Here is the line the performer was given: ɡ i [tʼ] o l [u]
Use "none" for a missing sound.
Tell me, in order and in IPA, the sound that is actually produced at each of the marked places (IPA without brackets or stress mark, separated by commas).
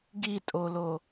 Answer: tʼ, o